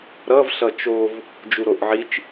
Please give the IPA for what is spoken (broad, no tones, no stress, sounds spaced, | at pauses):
ɾ ʌ v ɬ ʌ t͡ʃ o v | d͡ʒ u ɾ o ʔ ʕ i t͡ʃ